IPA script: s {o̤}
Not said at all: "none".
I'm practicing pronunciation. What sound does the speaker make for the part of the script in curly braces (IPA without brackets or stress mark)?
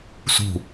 ṳ